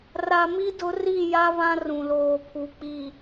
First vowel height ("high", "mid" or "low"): low